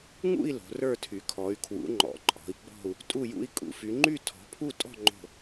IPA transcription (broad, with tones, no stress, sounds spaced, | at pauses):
ŋ ṵ˥˧ i̯ l o̤˨˦ r ə˞˥˧ tʰ y˨˦ kʰ ɔ˨˦ y̯ kʰ w ṵ˨˦ ŋ͡ǃ ɔ̰˨˦ ǃʼ ɔ̤˨˦ i̯ ɡ͡b ɔ̤˥˧ u̯ | tʼ u˥˧ j ṵ˥˧ i̯ kʼ ṵ˨˦ f y˨˦ ŋ͡ǃ y˥˧ tʰ ɔ̤˨˦ pʰ u˥˧ tʼ ɔ̤˥˧ ŋ͡ǃ o̤˥˧